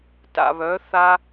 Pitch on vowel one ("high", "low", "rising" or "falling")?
low